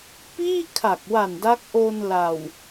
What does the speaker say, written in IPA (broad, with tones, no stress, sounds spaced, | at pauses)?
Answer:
p iː˥˩ kʰ a˨˩ k̚ w a˨˩ n d a˦˥ k̚ ʔ o˧ n l a˨˩ w